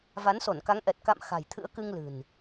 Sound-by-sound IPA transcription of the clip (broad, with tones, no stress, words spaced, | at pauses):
va˨˦nso˧˩nka˨˦ŋʔɛ˨˩t̚ ka̰˧˨m xa̤˨˩jt̪ʰɨ̰˧˥ə̯kɨ˧ŋ lɨ̤˨˩n